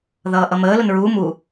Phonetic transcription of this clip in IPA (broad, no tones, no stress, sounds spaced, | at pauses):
ð ʌː ʔ ʌ m əː l ʊ n ɹ uː m u